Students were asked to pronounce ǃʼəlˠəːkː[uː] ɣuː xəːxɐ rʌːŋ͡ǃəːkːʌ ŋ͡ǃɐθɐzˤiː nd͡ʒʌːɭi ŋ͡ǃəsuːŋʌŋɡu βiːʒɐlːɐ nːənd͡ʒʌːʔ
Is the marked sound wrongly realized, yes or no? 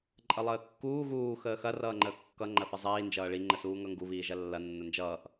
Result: no